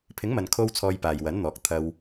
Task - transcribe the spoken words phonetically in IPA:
pʰ ɪ˨˥ ŋ m ɐ˨ n kʰ o˧ w t͡sʰ ɔː˧ j p aː˨ j w ɐ˨˥ n n̪ ɔː˨˥ k̚ t̪ʰ ɐ˧ w

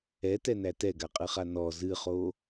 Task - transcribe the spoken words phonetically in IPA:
ɛ t ɛ n æ t ɛ ɡ a qʼ ɨ χ a n ɔ z ɨ χ o

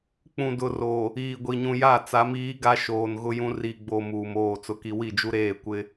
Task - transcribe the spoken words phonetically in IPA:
k͡p ũ˨ d ʊ˨ r o˨ | iː˨ ɡʷ i˨ ɲ ũ˨ j a˦˨ t͡s a˨˦ m iː˨˦ ɡ a˦ ʃ oː˨ n ɣ ʊ˦ j ũ˦ r i˨ ɡ͡b o˨ m uː˨ m oː˦˨ t͡s ʊ˦ k i˦ w i˦˨ d͡ʒ u˦ ɾ eː˦˨ kʷ ɪ˦

